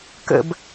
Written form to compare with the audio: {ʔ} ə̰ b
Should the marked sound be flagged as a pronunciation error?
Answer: yes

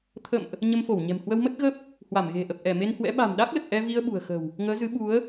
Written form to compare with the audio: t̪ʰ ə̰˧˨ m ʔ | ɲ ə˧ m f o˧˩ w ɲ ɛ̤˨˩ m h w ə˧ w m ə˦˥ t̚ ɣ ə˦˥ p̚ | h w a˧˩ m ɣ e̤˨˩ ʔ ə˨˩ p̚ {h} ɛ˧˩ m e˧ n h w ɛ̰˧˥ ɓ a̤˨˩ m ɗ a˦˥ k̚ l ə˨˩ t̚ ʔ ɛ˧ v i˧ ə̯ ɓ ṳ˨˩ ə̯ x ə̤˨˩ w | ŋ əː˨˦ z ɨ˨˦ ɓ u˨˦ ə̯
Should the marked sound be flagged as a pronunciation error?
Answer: yes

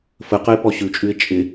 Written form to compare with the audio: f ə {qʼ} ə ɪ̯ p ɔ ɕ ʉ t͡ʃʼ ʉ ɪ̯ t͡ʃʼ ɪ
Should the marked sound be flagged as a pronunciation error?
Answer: yes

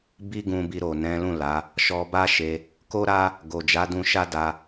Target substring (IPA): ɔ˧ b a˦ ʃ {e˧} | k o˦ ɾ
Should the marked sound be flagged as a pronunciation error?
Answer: no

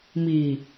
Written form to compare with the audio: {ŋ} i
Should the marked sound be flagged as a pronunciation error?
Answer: yes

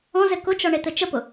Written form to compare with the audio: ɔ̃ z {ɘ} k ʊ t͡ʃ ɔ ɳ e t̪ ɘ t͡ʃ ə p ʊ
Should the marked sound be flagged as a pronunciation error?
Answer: no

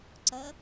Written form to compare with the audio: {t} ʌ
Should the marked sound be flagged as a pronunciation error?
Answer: yes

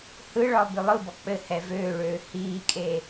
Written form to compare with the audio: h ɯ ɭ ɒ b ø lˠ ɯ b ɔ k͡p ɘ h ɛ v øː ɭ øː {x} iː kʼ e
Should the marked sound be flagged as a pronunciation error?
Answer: yes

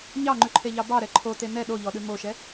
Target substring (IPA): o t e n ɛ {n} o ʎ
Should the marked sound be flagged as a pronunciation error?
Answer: yes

